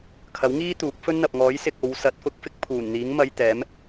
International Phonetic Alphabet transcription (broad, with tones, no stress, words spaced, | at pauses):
kʰɐ˨˥wŋiː˥ t̪uː˨˥k̚fɵ˥n n̪ɐ˨p̚ŋɔː˨˥jsɪ˨k̚ o˨˧wsɐ˨˥t̚fʊ˨˥k̚ fɪ˥k̚pʰuː˨˩nn̪iː˨˥ŋmɐ˧j t̪ɛː˨˥m